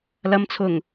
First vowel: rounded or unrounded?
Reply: unrounded